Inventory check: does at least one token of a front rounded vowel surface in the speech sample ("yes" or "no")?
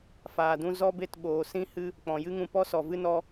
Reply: no